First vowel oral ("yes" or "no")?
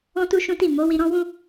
no